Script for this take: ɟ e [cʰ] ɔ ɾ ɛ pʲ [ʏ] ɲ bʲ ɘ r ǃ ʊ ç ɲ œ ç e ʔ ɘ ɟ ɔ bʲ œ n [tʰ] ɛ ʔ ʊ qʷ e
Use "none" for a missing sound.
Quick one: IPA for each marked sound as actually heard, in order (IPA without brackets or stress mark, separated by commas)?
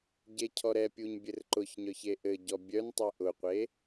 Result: cʰ, u, tˤ